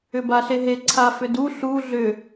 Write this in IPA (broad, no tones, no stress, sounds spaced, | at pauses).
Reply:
ʏ b a ɬ e ɦ e ǀʰ a f ʏ d u ɬ u ɮ ʏ